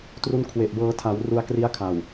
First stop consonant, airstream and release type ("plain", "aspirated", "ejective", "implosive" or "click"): plain